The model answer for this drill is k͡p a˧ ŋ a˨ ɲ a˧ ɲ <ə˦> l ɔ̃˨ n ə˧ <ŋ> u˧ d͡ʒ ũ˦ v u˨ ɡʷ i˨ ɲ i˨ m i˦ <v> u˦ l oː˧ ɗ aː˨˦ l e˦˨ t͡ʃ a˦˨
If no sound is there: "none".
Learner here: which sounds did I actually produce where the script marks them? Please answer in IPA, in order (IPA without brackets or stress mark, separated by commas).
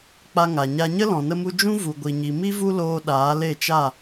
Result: ə˦, m, v